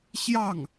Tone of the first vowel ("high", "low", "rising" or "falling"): falling